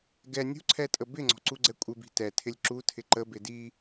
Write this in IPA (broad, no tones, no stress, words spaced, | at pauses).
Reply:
ɡɛ nʲṳǀʰɛtʼə bɪŋ͡ǀɔ̤ǀuɡ͡ǀɛ kʷʼɪbi̤ tɛtʰɪlʲ ǁutʰɪ ǃəbɪ di